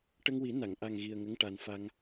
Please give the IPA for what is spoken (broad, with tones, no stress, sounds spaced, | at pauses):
ʈ ə˧ ŋ w i˨˩˦ n a˨˩˨ ŋ ʔ a˨˩ ŋ ɣ i˨˩ ə̯ ŋ ə˧˥ ŋ ʈ a˨˩ n f a˧ ŋ